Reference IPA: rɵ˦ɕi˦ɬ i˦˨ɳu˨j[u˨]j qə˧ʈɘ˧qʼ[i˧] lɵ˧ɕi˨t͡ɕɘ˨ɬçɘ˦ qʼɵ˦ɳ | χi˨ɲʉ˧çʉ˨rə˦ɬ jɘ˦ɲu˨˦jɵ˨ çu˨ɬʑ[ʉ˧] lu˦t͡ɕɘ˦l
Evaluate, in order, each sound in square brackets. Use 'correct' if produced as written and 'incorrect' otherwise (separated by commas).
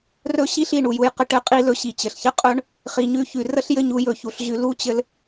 incorrect, correct, correct